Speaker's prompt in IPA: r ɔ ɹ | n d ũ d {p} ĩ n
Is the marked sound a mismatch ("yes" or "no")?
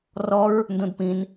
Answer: no